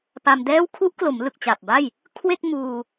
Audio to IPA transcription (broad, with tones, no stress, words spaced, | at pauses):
pa˧mdɛː˥˩w kʰu˦˥ʔklo˩˦mlɯ˨˩k̚ t͡ɕa˨˩p̚ba˥˩j | kʰwe˥˩k̚muː˧